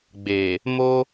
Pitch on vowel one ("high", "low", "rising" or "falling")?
low